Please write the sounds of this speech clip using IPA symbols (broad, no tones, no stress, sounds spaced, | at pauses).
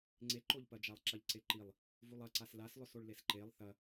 ŋ͡ǀ e ǃ o ʎ p ɐ d͡ʒ a lˠ ǁ ɐ ʎ ǀ e ǃ i lˠ | v u lˠ ɐ ǀ a s l a s lˠ ɵ s o ɭ l e s ǃ e lˠ θ ɐ